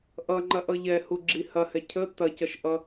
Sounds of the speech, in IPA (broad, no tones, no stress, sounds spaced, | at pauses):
ʔ ʌ ŋ͡ǃ ɐ ʔ ʌ ʎ ɛ h u ɡ͡ǁ i h ɐ h ɛ cʰ ə t ɐ c ʌ ʃ ʔ ʌ